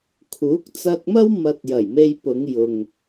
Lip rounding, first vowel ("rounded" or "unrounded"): rounded